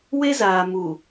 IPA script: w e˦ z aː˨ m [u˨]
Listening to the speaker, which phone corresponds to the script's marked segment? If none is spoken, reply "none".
u˨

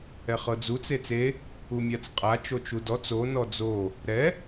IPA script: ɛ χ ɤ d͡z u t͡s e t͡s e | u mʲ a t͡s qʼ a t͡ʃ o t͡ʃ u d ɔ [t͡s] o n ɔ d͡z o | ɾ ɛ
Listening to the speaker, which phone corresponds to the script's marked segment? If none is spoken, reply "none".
t͡s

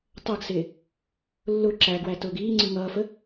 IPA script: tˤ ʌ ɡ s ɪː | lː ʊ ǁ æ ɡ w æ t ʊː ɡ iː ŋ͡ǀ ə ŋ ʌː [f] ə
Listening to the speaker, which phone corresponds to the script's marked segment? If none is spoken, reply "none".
f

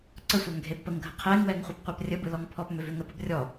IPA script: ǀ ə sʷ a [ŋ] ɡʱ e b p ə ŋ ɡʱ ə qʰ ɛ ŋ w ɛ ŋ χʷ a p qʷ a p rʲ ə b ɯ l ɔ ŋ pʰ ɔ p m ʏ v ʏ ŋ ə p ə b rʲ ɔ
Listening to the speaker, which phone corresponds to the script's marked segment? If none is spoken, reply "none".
ŋ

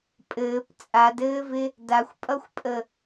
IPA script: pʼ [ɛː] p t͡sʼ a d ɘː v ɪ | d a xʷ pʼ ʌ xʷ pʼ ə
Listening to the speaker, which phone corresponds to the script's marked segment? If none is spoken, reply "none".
ɘː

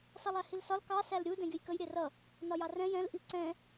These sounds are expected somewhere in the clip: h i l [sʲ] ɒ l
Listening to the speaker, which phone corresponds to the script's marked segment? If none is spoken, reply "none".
s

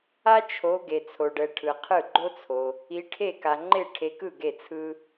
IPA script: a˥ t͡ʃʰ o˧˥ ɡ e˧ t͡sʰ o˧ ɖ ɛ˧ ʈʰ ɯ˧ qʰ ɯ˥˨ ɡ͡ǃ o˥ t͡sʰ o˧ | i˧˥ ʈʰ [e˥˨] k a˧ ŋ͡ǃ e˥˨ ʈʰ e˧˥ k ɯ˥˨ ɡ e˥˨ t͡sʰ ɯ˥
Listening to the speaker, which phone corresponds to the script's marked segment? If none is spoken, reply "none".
e˥˨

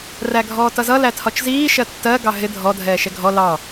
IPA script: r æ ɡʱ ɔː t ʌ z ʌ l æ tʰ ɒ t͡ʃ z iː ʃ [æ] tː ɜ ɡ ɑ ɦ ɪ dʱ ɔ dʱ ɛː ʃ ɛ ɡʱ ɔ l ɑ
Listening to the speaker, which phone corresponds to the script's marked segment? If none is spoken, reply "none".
ɜ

